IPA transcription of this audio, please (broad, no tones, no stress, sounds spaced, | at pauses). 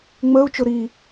ŋ͡m əː u̯ t͡ʃ ʊ ɾ i